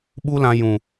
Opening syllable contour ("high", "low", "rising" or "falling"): high